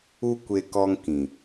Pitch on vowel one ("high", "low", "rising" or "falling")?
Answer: high